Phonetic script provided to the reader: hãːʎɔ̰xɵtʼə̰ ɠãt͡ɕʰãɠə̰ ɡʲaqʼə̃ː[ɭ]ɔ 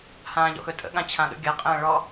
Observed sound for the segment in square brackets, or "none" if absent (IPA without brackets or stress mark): ɭ